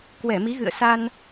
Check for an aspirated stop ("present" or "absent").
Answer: absent